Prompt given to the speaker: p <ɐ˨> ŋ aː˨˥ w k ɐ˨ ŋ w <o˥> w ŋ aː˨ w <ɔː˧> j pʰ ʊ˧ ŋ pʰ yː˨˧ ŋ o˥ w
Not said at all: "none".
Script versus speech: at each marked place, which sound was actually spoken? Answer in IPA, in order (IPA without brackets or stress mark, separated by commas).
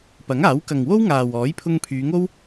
ɐ˨˥, o˥, ɔː˨˥